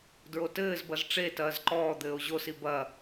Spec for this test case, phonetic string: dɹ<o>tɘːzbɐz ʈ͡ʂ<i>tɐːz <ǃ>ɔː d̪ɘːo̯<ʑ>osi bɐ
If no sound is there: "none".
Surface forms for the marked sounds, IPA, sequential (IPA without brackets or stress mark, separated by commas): o, e, ǃ, ʑ